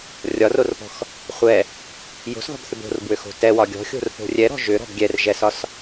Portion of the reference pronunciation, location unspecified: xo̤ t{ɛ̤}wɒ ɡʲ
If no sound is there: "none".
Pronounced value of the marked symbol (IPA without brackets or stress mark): ɛ